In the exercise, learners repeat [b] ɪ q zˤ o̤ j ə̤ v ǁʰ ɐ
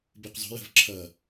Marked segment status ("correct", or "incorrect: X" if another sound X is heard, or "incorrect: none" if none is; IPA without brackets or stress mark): correct